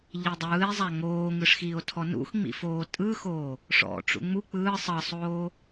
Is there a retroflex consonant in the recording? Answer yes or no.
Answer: yes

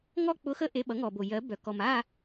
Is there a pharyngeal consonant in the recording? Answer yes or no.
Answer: no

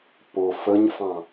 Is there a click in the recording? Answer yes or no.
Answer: no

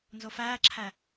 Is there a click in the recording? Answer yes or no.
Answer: yes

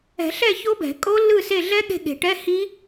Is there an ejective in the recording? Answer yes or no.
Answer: yes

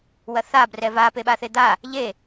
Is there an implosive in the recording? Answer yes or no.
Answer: yes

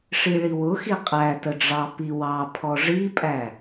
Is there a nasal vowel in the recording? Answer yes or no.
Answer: no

